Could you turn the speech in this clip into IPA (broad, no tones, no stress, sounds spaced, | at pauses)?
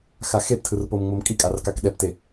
x a x e p tʰ ɯ r p o m ŋ͡m o m kʼ i kʼ a r k a k ɗ ɛ p t e